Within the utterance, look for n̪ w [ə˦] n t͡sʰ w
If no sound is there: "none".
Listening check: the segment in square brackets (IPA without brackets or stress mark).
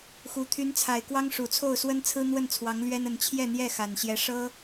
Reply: ə˥˩